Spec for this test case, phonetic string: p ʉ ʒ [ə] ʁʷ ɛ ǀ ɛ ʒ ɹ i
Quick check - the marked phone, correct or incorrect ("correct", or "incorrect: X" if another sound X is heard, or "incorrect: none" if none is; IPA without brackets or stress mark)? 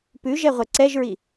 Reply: incorrect: ɛ